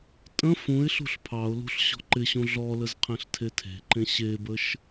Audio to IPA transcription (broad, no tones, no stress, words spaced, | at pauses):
tʼə̃ fũɪ̯ɬṳɬ pʰɑʊ̯lṳɬ ɕɔ̤ǃɪɕũ ɮɔləz qʰẽɬtʰetʰe̤ǃẽ ɕebəʃ